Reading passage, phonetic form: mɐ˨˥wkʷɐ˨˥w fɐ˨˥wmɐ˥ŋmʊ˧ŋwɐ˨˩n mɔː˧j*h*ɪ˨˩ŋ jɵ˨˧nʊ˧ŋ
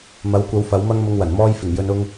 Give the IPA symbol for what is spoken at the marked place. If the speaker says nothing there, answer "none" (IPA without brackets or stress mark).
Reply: f